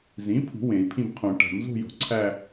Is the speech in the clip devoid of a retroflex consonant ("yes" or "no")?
no